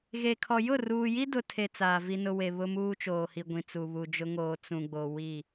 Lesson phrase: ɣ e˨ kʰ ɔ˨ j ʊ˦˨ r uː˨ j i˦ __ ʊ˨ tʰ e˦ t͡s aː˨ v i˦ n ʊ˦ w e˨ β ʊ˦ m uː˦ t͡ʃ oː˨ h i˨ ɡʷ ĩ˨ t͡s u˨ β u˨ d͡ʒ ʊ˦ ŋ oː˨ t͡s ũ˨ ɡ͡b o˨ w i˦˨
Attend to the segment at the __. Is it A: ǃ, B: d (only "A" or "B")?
B